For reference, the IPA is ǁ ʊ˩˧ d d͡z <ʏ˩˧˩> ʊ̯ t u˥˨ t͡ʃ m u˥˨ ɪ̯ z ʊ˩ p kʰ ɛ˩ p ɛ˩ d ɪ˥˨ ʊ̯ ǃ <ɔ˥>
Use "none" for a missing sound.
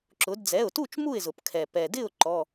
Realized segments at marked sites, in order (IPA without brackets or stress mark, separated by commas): ɛ˩˧˩, ɔ˩˧˩